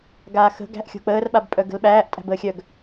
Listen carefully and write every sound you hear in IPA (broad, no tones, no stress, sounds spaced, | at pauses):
ɡ aː x ə̤ ɡ æ̤ ʔ xʲ o̤ k͡p əː r ɓ a b pʼ œ ɡ ə̤ l ɓ æː ʔ tʼ æ̤ b əː xʲ œ ɡ